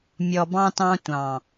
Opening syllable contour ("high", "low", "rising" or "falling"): low